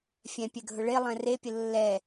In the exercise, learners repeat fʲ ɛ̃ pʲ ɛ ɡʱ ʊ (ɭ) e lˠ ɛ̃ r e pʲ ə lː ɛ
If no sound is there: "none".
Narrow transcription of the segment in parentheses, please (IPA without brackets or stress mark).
ɭ